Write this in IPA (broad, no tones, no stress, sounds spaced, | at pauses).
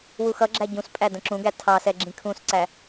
w u x ʌ ɡ͡ǁ æ ɟ ũ s pʼ æ d ə̃ ǁ ũ ɡ æ tʰ ɑ s ɛ ɡ͡ǁ ĩ kʰ ũ s ǀ æ